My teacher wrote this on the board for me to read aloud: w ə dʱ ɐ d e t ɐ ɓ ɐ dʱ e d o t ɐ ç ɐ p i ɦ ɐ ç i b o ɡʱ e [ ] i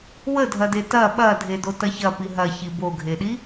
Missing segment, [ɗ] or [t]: ɗ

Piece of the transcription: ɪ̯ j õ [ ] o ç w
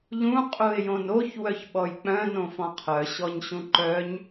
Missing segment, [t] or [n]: n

